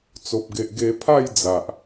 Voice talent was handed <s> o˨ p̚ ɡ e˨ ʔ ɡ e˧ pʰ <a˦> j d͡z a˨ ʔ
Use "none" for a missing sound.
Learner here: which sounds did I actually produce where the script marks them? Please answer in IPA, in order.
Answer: t͡s, a˥˧

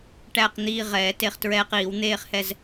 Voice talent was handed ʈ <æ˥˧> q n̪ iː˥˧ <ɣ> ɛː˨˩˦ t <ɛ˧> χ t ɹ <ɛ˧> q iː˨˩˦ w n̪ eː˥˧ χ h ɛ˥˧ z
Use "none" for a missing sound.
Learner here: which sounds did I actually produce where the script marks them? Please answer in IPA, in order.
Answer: æ˥˧, ʁ, e˧, ɛː˧

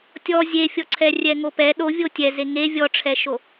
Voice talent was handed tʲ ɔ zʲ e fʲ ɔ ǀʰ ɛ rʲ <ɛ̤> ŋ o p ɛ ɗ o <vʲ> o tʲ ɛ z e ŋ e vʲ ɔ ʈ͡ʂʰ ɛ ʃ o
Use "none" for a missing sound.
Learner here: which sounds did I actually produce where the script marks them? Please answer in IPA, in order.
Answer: ɛ, vʲ

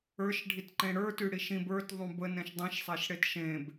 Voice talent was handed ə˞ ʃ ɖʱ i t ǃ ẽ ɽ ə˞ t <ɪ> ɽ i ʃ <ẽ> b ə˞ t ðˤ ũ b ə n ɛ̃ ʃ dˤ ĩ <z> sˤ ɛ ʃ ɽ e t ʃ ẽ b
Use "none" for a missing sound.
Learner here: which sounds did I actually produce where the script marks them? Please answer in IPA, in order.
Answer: y, ĩ, ʃ

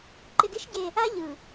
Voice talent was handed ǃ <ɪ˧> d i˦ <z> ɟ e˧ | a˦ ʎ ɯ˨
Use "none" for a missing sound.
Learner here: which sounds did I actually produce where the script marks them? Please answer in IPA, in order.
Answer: ɪ˧, ʃ

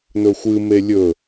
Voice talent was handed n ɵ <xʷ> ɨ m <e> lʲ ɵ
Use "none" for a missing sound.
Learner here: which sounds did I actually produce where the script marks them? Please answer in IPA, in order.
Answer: xʷ, e

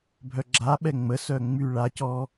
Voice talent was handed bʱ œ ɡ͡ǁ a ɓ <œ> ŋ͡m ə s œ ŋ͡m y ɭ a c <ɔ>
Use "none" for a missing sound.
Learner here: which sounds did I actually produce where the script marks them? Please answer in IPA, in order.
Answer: ɛ, ɔ

